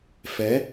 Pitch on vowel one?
rising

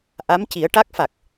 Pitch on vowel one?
rising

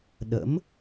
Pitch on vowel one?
rising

